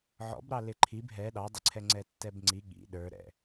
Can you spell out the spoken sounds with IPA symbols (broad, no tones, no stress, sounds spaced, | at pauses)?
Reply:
ʕ ɔ̰ b ɾ ɑ l ɪ ǃʰ i b ɦ ɛ ɗ ɑ dˤ ɪ ǀʰ ɛ ŋ͡ǀ ɛ tː ɛ b ŋ͡ǀ i ɠ ḭ ɗ ə˞ ɾ ɛ̰